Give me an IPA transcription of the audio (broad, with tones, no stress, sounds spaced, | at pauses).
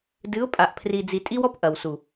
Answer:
d ɨ˨˦ ʊ̯ pʼ a˨ ʔ pʰ r i˨ d͡z i˨ tʼ i˦ w ɔ˦ p ʔ ɐ˨ w s u˨